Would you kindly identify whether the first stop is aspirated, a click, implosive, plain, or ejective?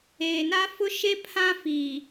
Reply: aspirated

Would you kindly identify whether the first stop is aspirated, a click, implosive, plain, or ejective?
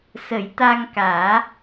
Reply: plain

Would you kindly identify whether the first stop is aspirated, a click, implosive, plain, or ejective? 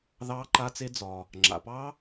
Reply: click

